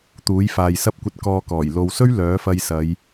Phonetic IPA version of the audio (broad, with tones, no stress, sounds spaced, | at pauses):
t̪ uː˨˥ j f aː˨ j s ɐ˥ p̚ kʷ ɐ˧ t̚ k ɔː˨ k ɔː˨˩ j l o˨ w s ɵ˥ ɥ l œː˨˥ f ɐ˧ j s ɐ˨˧ j